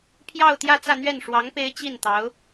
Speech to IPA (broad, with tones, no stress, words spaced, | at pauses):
pʰjɑ˥˧ʊ̯t̪jä˥˧t͡sä˥˧n̪ɥɛ˥˩n ʂwɑ˧˥ŋ pe˥ɪ̯ t͡ɕi˥˩n t̪ɑ˧˥ʊ̯